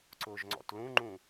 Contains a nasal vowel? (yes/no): yes